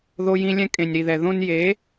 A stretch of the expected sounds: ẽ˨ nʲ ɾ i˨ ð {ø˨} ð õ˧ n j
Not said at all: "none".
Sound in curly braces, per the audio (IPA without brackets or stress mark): ɛ˨